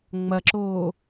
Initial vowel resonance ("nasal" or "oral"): oral